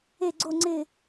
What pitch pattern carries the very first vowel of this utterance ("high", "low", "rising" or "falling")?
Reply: falling